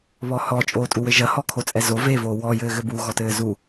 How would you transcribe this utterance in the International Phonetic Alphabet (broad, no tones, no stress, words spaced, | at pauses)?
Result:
βɔhɔ t͡ʃʼoːtʼuwɘʒɐ hɔkʰot͡sʼɛzo vevoː wɔjɘːɣɘ buɣɔtɘː zu